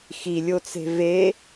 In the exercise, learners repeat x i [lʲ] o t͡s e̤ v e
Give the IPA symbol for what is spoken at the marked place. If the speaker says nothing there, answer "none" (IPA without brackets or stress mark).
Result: lʲ